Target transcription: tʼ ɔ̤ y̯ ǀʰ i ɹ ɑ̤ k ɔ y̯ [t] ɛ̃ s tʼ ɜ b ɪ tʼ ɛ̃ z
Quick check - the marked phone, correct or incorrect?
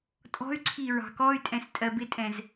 incorrect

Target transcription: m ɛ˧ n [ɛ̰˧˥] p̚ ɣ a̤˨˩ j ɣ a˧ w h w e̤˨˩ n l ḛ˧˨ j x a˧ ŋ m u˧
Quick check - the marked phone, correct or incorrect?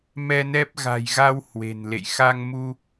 incorrect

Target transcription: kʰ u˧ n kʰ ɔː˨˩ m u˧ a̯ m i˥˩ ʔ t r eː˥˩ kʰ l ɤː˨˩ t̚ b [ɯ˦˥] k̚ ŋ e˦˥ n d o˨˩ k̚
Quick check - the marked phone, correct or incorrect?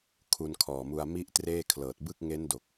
incorrect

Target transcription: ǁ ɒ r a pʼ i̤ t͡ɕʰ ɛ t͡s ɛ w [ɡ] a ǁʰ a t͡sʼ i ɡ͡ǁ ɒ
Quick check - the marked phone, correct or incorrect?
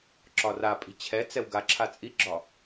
correct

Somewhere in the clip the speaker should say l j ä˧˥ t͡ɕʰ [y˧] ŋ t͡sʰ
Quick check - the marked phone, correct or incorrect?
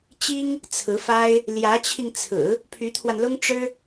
incorrect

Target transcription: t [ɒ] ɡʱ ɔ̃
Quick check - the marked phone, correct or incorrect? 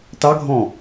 incorrect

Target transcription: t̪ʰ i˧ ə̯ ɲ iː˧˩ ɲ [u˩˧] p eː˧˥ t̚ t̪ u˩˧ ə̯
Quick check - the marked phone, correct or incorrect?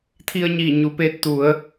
correct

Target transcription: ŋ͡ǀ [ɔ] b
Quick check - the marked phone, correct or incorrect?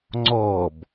incorrect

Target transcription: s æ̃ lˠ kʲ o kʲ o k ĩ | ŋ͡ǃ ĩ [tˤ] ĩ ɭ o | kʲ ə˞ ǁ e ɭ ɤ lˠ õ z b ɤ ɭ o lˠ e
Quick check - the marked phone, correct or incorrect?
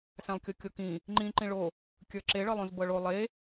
incorrect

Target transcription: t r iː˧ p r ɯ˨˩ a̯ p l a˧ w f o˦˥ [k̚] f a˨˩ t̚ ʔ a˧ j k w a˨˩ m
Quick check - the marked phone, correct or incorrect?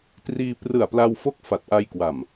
correct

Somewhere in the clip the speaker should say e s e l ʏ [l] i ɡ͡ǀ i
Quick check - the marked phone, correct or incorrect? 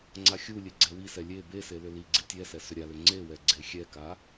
correct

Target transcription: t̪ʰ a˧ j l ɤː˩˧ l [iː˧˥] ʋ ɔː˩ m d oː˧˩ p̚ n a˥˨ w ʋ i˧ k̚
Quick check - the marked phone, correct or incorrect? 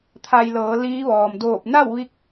correct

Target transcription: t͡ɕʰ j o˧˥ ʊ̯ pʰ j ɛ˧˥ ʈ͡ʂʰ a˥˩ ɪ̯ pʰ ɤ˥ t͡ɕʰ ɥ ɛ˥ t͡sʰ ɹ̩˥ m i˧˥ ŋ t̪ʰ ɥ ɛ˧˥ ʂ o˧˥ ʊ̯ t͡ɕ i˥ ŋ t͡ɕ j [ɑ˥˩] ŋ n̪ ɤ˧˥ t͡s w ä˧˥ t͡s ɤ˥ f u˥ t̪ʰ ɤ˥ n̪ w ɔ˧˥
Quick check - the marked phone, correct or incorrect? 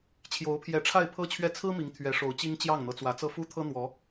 correct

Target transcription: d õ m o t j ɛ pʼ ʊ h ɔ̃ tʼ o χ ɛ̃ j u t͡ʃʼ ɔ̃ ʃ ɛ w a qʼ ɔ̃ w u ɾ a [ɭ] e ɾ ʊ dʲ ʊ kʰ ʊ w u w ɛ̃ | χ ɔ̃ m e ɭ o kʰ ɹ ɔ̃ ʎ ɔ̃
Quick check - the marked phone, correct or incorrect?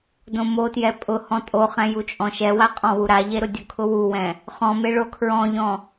incorrect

